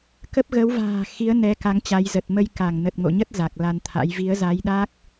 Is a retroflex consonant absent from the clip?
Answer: yes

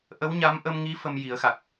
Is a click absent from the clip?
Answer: yes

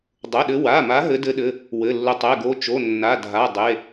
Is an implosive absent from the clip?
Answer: no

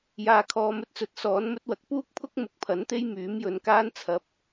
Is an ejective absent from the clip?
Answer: yes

